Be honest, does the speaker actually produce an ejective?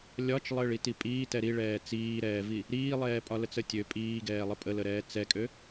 yes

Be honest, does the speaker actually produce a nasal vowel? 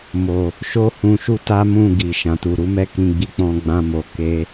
yes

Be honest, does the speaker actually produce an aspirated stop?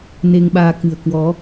no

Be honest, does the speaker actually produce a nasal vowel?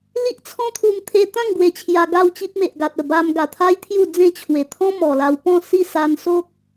yes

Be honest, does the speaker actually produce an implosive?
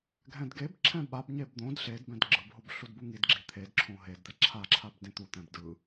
yes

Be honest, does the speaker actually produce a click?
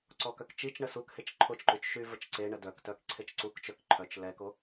yes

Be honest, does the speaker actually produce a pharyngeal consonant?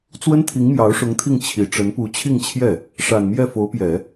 no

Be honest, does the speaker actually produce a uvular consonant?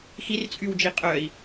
yes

